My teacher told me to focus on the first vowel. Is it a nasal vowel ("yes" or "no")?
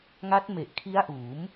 no